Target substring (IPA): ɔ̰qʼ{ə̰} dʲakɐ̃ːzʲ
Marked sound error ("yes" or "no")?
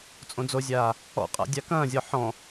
yes